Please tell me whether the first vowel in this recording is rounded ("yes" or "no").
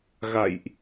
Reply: no